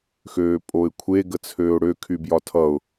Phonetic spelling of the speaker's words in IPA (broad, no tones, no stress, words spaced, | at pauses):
xøːpʼoɪ̯kʷʰe ɡət͡sʰøːʊ̯ɽø kʰybjɒtʰʌʊ̯